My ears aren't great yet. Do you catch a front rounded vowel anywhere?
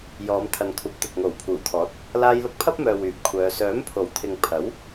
yes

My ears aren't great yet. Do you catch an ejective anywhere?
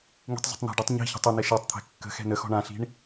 no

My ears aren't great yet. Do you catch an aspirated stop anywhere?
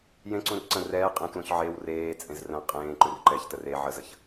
no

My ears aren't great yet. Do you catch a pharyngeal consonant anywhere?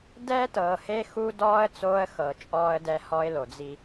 no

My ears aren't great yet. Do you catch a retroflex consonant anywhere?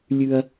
no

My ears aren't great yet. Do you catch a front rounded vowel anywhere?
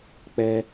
no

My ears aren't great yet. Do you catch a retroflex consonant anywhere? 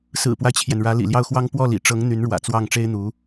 yes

